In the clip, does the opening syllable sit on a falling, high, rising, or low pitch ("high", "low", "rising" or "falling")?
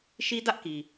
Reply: high